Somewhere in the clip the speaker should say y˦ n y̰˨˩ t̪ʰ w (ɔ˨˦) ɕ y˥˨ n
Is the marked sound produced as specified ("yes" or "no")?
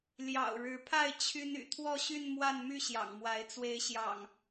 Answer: no